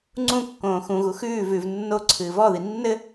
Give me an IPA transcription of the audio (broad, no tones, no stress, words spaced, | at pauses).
ŋ͡ǀũkːõː xũɣu xʉː vʉv nːo ǀʰɨːvɔði nːɘ